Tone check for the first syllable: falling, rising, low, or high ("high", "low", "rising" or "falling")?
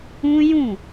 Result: high